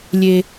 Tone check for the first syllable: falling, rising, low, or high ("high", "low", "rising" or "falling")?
low